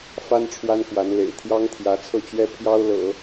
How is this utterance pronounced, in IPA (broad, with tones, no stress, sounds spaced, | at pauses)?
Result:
f a˥ n ʈ͡ʂʰ w a˥ n k w a˧˥ n l ḛ˨˩ ɪ̯ t̪ʰ j ɑ˥ ŋ t̪ʰ j ä˧˥ t͡sʰ ɤ˥˩ t͡ɕ ɥ ɛ˥ pʰ j ɑ˥ ʊ̯ l ɤ̰˨˩˦